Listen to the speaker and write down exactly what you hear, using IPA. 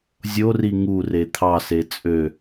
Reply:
zʲori ŋure t̪ʰɑse t͡sʼø

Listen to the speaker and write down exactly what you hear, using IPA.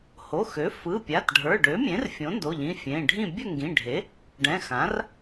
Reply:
ho˩˧˩xø˩˥ fɯ˩˧˩pʲa˩˧˩t ɖʱə˞˩˧˩ɖø˩˥mʲẽ˩˥r fʲõ˩˥ndo˩˧˩ʎĩ˩˧˩ fʲẽ˩˧˩ɖʱĩ˥˨ bʲə˥˨ŋɡĩ˩˧˩ɖʱe˩˥ | ɖɛ̃˩˧˩xã˩˥r

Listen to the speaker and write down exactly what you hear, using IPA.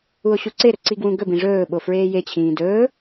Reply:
uo̯ɕuǀeɾɵ ǀiɡwũɡɵbĩ ʐɵːɓo fɹeːjet͡ɕʰĩː dɵː

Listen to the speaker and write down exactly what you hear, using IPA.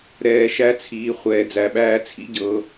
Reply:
ɾɛː˧ʃæ˦t͡sʰiː˧ χʷɛː˧d͡zæ˧ɓæː˦ t͡sʰḭ˦ɟɤː˧

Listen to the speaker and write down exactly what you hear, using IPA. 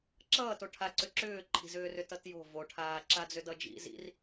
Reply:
ǁʌːto ʈʰaǀʏ ǁʏːǃʰi̤zʏː rʏtʌtjo̤ voʈʰaː ǁad͡zʏdʌd͡ʒḭ zḭr

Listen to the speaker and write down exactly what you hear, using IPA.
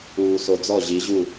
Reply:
uː˨so˨ d͡zɔ˦˨ʑi˨˦ʑu˦˨

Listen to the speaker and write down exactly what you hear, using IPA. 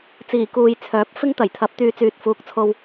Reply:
t͡siː˨˩kuː˨j t͡sʰœː˨˥p̚fɪ˥ŋt̪ɐ˨˩jt̪ʰɐ˨˥p̚ t̪yː˧t͡syː˨t̚fuː˨˥k̚t͡sʰo˧w

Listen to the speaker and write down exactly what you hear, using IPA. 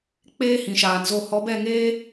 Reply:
k͡peː˧ hĩ˨ʃaː˨nzo˦˨ hɔ˨˦bɛ˦˨ŋeː˦

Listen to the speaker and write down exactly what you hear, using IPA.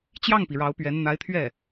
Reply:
t͡ɕjɑ˥˩ŋpi˩ ɻɑ˧˥ʊ̯pɥɛ˧˥n n̪a˧˥ɪ̯t̪ʰɥɛ˥˩

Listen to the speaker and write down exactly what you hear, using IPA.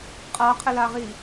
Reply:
qʼaqʰɪlaʁi

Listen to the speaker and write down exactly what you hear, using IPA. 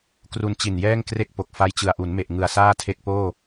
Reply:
kru˧nt͡ɕi˨˩njɛː˥˩ŋ kre˥˩k̚po˨˩k̚ fa˧jt͡ɕɯ˨˩a̯ʔu˩˦nme˨˩ʔ ŋɯ˨˩a̯saː˥˩tʰe˦˥k̚poː˥˩

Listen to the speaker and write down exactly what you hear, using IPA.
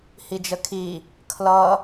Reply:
hid͡ʒəkʰi | kʰlʌ

